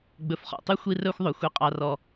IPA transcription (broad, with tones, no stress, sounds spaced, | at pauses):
ɡ͡b ɵ˨ f χ ɔ̰˨ tˤ y˦ xʷ i˦ r œ˦ xʷ ðˤ ɵ˨ xʷ i˨ qʼ ɑ˨ r ɔ˨